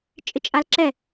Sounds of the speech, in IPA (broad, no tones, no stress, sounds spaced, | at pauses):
t͡ʃʼ ɪ t͡ʃʼ a l ǁ ɛ